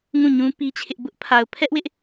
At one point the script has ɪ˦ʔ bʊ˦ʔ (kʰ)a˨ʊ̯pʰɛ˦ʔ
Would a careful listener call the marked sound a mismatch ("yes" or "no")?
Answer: yes